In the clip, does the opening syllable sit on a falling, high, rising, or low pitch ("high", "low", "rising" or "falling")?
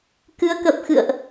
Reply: rising